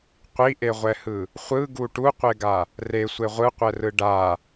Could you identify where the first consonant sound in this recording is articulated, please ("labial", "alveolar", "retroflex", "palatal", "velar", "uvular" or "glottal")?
uvular